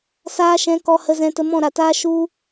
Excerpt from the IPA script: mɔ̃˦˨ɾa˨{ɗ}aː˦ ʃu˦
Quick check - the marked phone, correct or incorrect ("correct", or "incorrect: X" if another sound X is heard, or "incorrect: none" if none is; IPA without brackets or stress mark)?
incorrect: t